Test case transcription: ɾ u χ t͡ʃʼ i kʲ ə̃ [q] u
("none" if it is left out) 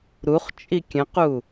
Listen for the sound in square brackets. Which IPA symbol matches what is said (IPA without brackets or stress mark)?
q